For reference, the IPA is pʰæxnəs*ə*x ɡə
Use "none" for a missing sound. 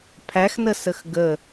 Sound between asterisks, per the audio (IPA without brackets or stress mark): ə